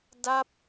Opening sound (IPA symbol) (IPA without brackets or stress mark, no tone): d